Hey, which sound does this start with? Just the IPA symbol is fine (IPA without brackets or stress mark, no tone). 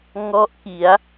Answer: ŋ